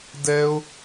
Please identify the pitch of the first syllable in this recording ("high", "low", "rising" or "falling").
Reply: high